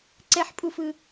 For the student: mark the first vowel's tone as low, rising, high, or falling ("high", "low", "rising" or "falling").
high